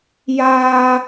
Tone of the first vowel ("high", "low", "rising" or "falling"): high